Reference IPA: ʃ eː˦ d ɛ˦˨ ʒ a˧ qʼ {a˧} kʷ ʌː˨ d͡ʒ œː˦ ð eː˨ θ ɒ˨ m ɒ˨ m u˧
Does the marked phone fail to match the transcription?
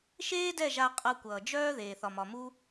yes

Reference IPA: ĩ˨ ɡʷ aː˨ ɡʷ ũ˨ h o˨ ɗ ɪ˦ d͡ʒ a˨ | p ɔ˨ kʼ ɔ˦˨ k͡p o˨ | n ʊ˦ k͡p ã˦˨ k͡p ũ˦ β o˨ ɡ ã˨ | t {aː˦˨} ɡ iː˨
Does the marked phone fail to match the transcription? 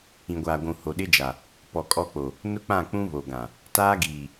yes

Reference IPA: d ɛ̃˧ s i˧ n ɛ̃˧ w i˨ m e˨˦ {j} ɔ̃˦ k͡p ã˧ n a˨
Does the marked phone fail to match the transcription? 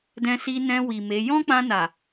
no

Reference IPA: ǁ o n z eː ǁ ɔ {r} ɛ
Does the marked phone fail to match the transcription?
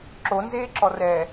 no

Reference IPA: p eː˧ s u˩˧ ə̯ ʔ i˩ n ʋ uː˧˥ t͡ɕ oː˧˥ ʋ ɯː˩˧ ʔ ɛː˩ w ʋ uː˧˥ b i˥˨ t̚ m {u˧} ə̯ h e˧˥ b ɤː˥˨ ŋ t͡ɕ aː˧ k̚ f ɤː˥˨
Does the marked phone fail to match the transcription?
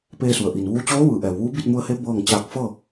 no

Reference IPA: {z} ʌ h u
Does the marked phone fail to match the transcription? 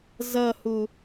no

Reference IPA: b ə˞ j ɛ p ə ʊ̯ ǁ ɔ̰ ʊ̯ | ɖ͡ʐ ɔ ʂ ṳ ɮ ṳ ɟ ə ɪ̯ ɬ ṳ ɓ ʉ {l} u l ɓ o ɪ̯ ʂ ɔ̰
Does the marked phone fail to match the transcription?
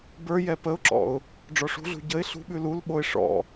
no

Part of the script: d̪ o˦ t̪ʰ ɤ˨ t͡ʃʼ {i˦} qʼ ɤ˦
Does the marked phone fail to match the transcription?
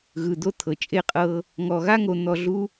yes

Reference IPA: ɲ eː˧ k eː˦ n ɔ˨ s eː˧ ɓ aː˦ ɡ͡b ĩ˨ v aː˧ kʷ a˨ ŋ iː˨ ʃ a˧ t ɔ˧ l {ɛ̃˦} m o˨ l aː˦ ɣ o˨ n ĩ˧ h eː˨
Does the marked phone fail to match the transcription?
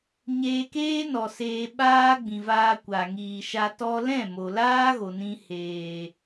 yes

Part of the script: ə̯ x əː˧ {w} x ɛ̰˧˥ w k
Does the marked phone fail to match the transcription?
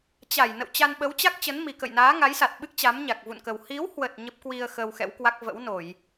no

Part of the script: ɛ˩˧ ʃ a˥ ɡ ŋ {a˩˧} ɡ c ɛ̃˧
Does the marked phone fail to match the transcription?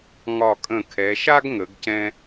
yes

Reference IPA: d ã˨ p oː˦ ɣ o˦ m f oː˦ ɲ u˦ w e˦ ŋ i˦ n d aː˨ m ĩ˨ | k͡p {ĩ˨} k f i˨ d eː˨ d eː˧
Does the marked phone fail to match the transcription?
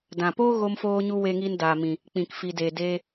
no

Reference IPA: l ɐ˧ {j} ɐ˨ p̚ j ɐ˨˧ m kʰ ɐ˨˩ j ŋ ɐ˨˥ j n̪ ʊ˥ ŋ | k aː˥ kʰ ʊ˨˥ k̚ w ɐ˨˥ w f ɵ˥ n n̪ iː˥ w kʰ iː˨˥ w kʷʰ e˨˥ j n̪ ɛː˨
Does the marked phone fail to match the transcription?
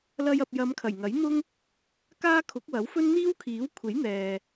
no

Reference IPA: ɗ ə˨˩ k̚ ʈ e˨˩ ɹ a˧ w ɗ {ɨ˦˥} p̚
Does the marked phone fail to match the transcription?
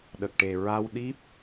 yes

